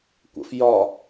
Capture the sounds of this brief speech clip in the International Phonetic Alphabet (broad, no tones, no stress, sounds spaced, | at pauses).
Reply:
kʷ ə̰ f j ɒ